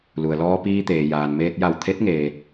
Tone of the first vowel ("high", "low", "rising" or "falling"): low